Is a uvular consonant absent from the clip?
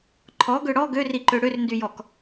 yes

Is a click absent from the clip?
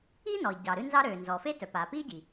yes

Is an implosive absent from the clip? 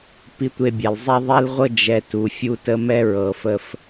yes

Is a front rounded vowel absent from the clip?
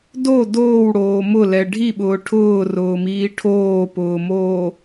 yes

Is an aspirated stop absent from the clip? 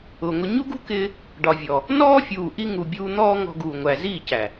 yes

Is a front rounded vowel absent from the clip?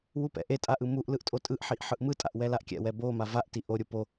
yes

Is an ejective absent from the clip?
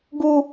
yes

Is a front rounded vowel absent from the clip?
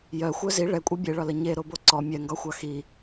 no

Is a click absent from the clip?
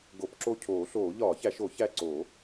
no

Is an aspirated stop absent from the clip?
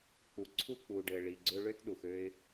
no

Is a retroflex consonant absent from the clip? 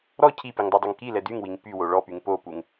no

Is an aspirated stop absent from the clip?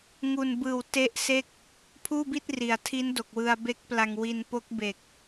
no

